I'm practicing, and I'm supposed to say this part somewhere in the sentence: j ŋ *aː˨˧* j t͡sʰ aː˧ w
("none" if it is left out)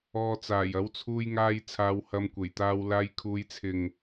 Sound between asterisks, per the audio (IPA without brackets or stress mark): aː˧